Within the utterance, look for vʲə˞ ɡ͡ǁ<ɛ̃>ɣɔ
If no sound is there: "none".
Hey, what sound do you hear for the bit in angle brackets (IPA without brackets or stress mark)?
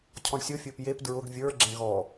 ɛ̃